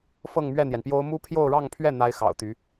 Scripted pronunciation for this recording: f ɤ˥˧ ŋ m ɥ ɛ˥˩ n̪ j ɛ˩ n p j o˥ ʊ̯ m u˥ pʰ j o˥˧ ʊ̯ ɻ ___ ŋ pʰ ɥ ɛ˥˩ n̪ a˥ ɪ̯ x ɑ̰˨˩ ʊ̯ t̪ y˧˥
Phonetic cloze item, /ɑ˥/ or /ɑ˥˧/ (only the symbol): ɑ˥˧